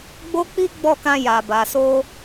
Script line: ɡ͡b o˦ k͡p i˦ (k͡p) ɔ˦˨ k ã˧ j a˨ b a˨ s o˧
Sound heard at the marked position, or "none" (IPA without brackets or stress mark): ɡ͡b